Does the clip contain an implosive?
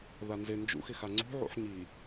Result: no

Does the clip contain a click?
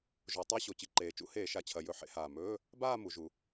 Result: yes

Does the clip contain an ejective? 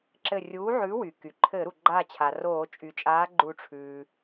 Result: yes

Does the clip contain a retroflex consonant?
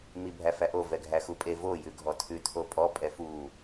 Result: no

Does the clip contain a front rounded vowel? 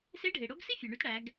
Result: yes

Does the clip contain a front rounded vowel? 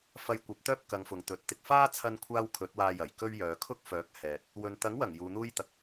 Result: yes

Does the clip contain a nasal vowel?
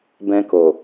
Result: yes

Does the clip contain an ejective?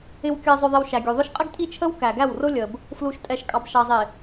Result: yes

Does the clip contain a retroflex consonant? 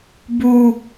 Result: no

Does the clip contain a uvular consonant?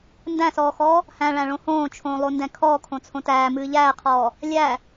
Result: yes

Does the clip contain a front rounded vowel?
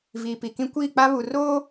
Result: no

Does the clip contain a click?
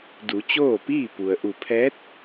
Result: no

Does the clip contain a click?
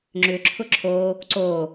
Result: yes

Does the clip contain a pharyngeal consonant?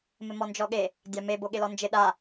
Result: no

